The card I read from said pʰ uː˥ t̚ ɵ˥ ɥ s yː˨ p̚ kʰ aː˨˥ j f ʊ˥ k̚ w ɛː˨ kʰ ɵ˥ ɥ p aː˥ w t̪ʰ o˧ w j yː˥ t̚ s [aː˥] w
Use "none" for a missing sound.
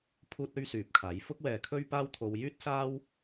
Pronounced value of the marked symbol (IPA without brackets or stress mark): aː˥